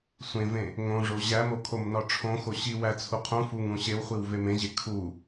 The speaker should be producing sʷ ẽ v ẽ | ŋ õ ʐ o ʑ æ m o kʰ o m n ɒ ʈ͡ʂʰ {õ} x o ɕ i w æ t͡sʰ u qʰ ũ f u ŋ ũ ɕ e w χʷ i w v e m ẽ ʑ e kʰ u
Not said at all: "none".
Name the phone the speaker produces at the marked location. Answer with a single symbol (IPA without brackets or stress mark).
õ